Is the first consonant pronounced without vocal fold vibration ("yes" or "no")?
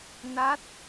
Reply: no